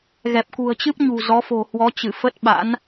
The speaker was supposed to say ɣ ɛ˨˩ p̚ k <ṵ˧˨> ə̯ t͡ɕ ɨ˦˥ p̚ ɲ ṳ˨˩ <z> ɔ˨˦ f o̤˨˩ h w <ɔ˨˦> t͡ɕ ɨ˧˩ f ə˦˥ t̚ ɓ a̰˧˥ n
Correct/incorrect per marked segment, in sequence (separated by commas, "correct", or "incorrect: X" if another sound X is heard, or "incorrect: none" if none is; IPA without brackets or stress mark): incorrect: ṳ˨˩, correct, correct